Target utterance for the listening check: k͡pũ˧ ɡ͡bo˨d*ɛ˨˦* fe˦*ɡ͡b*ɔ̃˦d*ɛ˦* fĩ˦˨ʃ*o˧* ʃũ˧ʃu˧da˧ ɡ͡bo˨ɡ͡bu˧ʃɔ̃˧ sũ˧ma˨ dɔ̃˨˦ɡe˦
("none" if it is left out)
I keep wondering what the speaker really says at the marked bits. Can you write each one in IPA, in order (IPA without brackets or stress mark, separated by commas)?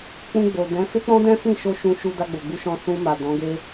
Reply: ɛ̃˨˦, k͡p, ɛ̃˦, o˧